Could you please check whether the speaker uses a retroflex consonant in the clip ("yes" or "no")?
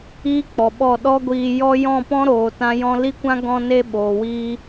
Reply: no